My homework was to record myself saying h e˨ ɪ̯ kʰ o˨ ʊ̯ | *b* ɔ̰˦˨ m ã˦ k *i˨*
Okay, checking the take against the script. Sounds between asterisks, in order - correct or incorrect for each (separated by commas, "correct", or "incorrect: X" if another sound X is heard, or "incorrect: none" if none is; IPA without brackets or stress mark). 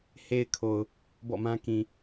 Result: correct, incorrect: ĩ˨